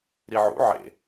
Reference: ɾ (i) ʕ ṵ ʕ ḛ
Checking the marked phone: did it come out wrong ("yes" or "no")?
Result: no